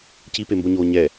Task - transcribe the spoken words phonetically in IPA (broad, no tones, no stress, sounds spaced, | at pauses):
c i p e m b o ɲ oː ɲ ɛ